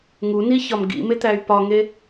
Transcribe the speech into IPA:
ŋ u n i ç ɒ m ɡ ḭ m e t̪ æ y̯ p ɒ ŋ e

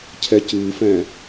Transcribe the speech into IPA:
cʰ ɛ c ɨː f ɛ̃

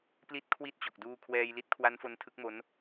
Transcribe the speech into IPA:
p l i˦˥ t̚ kʰ w i˦˥ t̚ t͡ɕ o˨˩ k̚ d uː˧ kʰ w ɛː˧ j l i˦˥ t̚ kʰ w a˦˥ n f o˦˥ n tʰ ɯ˦˥ k̚ m o˦˥ n

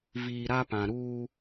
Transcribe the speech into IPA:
v iː˨ ɾ a˦ p ã˨ ɾ uː˦

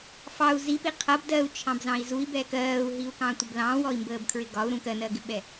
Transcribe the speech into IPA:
f ɑ u̯ z i p i qʰ ʌ b d ɜ u̯ t͡ʃʰ ɑ̃ b z ɑ̃ i̯ z u i̯ b ɛ k ɜː u̯ ɦ i u̯ k ɑ̃ tʷ ə b l ɑ̃ w ɔ i̯ m b əː b kʰ ɹ ɪ ɡ ɒ u̯ ɾ ũ k ɜ n ɜ ɡ ɪ ɓ ɛ

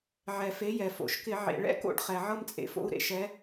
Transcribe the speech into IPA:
ʕ ɛ˩ f e˩˥ j ɛ˩ f o̰˧˩˧ ʃ k ɪ˧˩˧ ʕ ḛ˩ ɭ ɛ̰˥ k o̰˥˧ ɖ χ ɛ˩ ʕ ɤ˥˧ m t͡sʼ ḛ˩˥ f o̰˥˧ u̯ ɾ ḛ˥ ʃ ɛ˩˥

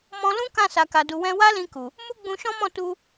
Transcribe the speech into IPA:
m ɔ̃˧ l ũ˦ k ã˦˨ s a˨ k a˨ d u˨ w ɛ̃˧ w a˦ l ĩ˧ k u˨ | m u˦ ɡ͡b ũ˧ ʃ ɔ̃˦ m ɔ̃˦˨ t u˧

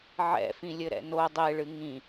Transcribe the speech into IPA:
ʕ ɛ̰ f ĩ lʲ ɘ ɾ ɛ̰ n o dˤ e ɭ ɨ ŋ ĩ

